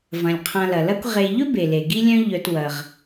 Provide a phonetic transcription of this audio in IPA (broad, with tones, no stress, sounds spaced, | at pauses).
v ɐ̃˩ lʲ qʰ ã˨ l ɐ˩ l ɐ˦ kʷ ʁ e˨ ʎ ɵ˥ b e˩ l e˩ ɡ i˥ lʲ œ̃˥ ʎ œ˨ t w ɐ˩ ʁ